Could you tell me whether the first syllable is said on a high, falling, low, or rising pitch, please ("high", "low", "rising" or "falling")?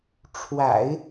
low